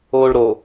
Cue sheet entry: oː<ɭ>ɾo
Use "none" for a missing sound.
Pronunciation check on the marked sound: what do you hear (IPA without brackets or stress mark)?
ɭ